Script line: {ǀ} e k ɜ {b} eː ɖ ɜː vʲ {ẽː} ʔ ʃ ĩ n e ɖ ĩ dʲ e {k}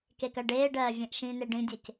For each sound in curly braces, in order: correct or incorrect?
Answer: incorrect, incorrect, incorrect, incorrect

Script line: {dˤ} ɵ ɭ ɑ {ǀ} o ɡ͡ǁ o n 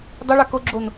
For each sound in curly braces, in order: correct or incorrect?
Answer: correct, incorrect

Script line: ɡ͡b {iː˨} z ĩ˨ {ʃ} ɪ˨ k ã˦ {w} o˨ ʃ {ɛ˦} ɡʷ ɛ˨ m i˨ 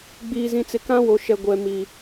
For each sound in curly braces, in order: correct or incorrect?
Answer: correct, incorrect, correct, incorrect

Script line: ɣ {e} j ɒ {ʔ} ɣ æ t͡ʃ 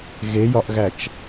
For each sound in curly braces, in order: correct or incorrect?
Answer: correct, correct

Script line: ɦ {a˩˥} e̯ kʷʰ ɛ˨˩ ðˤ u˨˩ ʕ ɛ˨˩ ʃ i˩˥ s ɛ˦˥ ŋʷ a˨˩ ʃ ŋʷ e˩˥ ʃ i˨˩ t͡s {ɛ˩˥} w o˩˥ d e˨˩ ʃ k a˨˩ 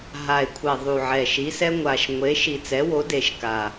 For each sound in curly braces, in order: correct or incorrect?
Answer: incorrect, correct

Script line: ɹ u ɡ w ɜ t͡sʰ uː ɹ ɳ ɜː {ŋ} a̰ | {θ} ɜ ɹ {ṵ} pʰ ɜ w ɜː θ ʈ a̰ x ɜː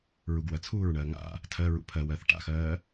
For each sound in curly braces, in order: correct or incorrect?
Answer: correct, incorrect, correct

